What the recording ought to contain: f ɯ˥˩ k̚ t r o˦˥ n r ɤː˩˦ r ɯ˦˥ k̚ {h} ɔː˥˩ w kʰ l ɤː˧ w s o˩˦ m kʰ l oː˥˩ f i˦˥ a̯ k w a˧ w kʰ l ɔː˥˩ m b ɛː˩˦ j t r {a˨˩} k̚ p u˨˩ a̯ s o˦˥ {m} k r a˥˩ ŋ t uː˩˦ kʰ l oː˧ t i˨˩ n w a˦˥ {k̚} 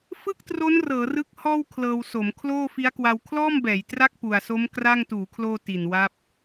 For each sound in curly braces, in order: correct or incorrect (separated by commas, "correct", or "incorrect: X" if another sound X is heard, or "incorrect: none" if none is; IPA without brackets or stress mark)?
correct, incorrect: a˥˩, correct, incorrect: p̚